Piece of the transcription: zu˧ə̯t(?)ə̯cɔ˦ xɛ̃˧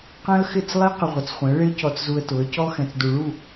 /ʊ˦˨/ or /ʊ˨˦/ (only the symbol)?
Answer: ʊ˨˦